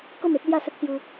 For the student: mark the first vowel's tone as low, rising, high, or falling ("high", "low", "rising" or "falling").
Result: falling